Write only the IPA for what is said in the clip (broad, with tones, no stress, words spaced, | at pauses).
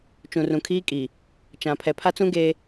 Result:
t͡ʃũ˨rũ˨kʰiː˦ kʼi˨ | t͡ʃã˨ pʰɛ˨pʰa˦t͡sũ˦ ɡe˦